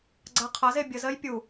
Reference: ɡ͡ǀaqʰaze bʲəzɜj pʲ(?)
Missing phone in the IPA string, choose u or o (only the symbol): u